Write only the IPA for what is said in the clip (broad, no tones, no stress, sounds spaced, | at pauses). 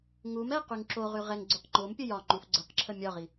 ŋ u m ɛ q y ŋ ǁ o ʁ y ʁ ɛ ŋ ɡ͡ǀ u q ŋ͡ǃ o m pʲ ə j ɒ ŋ͡ǃ u f ɡ͡ǀ ə q ǁʰ ə mʲ ɒ ʁ i